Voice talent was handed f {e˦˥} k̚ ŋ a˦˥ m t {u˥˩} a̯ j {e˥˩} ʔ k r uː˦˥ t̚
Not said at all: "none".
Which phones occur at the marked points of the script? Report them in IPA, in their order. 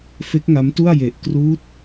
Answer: e˦˥, u˥˩, e˨˩

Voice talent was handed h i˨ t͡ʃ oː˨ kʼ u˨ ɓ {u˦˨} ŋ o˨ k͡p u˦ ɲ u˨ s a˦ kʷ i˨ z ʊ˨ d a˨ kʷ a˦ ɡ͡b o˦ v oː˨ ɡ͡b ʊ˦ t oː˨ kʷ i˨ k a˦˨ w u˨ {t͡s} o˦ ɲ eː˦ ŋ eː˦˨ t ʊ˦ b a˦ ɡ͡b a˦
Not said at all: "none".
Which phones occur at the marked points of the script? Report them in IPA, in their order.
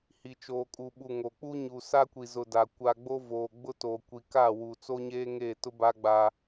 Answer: u˨, t͡s

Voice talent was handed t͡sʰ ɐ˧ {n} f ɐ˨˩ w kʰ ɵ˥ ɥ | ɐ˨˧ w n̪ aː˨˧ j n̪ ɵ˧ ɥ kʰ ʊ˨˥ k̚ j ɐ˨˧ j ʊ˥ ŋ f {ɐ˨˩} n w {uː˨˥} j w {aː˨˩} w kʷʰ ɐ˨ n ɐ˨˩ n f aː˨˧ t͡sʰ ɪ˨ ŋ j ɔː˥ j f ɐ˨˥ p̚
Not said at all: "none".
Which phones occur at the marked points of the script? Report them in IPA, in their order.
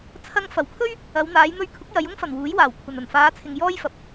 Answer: ŋ, ɐ˨˩, uː˨˥, aː˨˩

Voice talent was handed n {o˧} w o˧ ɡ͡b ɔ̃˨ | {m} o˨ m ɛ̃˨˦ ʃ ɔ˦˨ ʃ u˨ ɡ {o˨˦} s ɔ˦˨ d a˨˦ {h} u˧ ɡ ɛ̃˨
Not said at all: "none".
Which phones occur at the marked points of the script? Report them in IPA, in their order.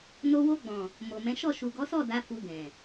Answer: o˧, m, ɔ˨˦, f

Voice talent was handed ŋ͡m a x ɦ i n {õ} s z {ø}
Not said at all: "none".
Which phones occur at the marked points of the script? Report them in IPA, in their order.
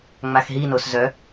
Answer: o, œ

